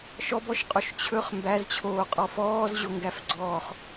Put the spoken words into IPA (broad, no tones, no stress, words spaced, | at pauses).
ʃɔbɔʃqʼoʃ t͡ɕʰɵχ mbæzt͡ɕʰoːqʼɔ fɔːzʑoŋɡæfɡ͡ǀɔːχ